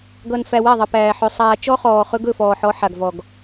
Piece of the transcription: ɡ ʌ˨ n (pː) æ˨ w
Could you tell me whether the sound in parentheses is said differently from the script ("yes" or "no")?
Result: yes